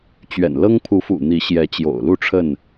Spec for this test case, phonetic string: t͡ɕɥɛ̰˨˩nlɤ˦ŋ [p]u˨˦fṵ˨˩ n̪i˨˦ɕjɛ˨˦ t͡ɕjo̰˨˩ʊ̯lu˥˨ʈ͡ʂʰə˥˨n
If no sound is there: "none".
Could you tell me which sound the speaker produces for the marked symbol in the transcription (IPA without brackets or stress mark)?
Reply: pʰ